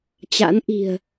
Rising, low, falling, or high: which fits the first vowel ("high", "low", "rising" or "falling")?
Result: rising